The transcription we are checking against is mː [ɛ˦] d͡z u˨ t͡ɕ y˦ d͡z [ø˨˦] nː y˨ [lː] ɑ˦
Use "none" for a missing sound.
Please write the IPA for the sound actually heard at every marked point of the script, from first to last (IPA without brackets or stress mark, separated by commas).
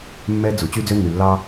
ɛ˦, ø˦, lː